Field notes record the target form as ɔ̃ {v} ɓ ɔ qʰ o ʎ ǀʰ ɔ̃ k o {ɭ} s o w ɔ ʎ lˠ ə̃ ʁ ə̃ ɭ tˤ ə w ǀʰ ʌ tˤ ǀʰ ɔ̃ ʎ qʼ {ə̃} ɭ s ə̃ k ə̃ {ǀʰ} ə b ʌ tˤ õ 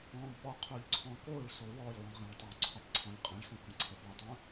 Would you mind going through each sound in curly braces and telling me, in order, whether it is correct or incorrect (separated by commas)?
incorrect, correct, correct, correct